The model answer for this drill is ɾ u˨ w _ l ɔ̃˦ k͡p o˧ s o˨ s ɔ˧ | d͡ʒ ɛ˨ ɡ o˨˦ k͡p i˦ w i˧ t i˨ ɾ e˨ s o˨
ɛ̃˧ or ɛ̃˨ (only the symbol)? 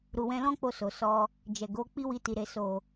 ɛ̃˧